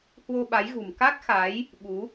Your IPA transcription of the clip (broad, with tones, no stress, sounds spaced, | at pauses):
h w o˧ ɓ a˨˦ j ɣ ṳ˨˩ m k a˦˥ k̚ x a˨˦ j | ɓ u˨˦